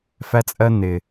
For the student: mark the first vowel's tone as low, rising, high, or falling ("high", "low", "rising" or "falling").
high